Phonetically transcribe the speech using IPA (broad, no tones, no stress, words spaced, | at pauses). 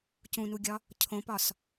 cũnuɡʲɒ | cʰõpɒs